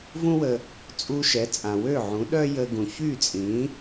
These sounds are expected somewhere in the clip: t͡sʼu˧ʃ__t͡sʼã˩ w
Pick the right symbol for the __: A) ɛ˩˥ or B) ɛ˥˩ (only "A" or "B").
A